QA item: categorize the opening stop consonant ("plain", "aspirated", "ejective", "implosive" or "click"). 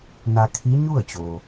aspirated